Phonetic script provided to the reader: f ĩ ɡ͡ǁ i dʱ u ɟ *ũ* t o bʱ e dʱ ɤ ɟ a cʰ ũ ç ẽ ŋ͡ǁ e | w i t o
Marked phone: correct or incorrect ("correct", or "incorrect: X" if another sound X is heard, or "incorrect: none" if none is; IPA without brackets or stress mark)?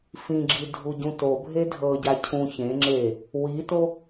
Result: correct